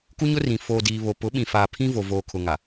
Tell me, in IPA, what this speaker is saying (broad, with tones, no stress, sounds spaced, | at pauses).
k u˦ ɲ ʊ˦ r ĩ˨ f oː˨ d iː˨ β o˨ p ʊ˨˦ ɓ ĩ˨ f aː˨ pʰ ĩ˦ v o˨ v oː˨ kʰ ʊ˨ ŋ a˨